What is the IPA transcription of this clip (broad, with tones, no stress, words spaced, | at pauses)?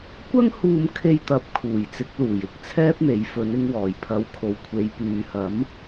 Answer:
kʷɐ˥ŋ huː˧mkʰe˧jt̪ɐ˨˥p̚ kʰuː˨˩jt͡sɪ˨˥k̚luː˨˩j ɪ˨˥k̚t͡sʰɛː˥p̚n̪e˨˧j fɵ˨˧n ɪ˧ŋwɔː˨˩jpʰɐ˨˧w kʰo˨wkʷʰe˨˧j pyː˨hɐ˨˥m